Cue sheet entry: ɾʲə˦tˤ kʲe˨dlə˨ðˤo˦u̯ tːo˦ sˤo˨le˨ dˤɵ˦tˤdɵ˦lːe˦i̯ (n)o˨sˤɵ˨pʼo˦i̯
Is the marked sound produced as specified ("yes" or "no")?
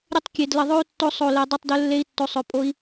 no